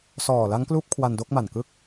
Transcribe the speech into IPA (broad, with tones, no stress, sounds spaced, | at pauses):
s ɔː˨˩ l a˦˥ ŋ k l uː˦˥ p̚ kʰ w a˧ n d o˥˩ k̚ m a˨˩ n k ɯ˥˩ k̚